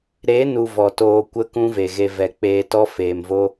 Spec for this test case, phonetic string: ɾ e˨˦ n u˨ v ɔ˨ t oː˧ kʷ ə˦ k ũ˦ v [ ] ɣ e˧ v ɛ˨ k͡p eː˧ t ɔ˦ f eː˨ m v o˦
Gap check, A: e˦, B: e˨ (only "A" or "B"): B